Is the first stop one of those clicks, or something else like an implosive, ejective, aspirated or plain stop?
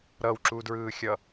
click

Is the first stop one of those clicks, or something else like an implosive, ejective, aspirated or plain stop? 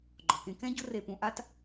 click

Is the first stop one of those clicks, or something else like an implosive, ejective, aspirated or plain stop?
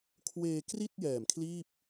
aspirated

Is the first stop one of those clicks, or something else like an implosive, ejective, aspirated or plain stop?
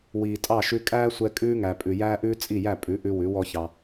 ejective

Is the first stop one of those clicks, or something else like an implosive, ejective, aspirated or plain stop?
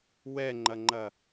click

